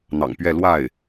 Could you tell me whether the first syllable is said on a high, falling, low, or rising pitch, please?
low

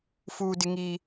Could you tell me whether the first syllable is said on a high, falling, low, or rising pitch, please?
high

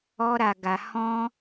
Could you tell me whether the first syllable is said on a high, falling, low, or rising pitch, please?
high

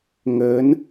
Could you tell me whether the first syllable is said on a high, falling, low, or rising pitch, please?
rising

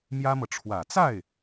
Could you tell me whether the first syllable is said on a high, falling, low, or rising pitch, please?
high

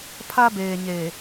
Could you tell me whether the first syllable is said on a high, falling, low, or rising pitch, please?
high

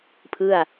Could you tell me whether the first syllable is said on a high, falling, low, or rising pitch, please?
falling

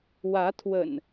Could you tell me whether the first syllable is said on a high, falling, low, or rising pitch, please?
rising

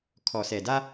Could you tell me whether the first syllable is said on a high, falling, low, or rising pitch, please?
low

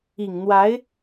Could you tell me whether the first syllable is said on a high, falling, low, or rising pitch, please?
low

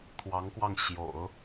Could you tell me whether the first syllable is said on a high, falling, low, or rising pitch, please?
rising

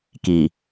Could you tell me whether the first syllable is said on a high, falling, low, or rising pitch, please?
low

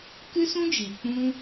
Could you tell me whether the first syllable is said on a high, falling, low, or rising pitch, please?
high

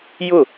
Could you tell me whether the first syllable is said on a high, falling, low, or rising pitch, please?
falling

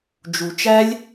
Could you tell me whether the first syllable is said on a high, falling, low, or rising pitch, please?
low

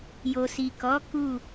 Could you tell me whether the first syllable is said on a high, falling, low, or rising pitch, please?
low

